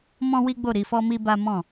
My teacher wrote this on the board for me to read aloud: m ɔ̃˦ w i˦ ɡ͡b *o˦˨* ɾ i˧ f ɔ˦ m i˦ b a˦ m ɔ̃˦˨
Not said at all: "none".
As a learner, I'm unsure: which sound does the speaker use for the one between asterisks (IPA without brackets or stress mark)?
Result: o˦˨